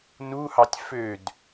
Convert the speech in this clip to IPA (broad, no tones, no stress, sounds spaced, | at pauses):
n u h ɑ tʲ f ø d